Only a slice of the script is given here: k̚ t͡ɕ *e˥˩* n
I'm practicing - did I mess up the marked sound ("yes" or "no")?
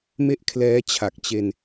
yes